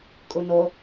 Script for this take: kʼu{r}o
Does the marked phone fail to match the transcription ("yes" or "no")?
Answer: yes